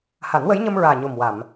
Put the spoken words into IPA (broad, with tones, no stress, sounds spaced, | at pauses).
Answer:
h a˨˩˦ n w ə˧˥ j ɲ ə˧ m ɹ aː˨˩ ɲ o˨˩ m w a˨˩˨ m